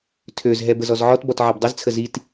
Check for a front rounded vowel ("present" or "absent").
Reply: present